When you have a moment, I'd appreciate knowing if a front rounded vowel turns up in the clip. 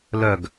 yes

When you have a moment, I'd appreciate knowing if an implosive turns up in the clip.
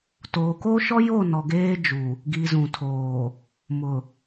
no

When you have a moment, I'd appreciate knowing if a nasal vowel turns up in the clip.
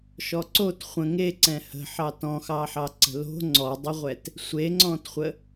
yes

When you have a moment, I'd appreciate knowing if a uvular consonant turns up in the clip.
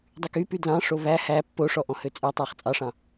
yes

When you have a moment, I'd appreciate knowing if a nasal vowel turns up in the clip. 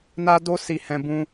yes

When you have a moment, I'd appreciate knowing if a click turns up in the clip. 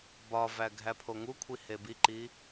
yes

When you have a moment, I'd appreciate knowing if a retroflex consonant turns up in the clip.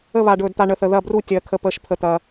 yes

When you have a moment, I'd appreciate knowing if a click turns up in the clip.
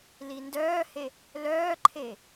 yes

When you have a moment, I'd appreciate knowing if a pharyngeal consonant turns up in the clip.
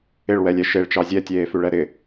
no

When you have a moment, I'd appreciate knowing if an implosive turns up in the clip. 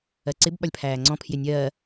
yes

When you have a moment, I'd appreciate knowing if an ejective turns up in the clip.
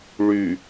no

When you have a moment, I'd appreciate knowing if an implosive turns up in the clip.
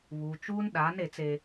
yes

